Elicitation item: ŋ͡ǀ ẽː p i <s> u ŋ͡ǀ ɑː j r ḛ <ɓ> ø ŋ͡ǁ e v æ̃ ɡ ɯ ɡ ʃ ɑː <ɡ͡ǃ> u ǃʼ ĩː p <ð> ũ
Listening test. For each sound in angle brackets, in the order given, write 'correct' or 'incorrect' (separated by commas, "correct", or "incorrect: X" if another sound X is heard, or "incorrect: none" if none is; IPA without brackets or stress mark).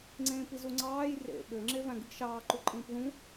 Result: incorrect: z, correct, incorrect: ǃ, correct